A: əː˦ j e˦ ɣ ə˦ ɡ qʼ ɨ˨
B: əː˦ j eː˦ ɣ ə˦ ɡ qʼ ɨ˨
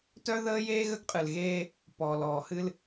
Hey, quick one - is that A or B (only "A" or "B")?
B